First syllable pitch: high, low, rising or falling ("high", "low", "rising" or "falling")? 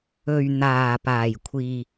low